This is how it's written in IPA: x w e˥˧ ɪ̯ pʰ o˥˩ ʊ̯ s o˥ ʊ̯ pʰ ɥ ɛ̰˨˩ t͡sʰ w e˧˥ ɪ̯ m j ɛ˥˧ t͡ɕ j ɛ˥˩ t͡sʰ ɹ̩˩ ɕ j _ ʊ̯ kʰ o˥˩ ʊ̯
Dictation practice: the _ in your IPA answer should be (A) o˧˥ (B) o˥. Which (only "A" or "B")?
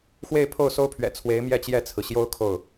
B